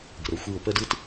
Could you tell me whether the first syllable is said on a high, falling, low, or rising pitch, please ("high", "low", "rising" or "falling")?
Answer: low